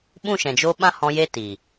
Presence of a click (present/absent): absent